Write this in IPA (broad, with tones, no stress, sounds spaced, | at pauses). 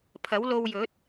pʰ ɐ˨˥ w l o˧ w j ɵ˨˥ t̚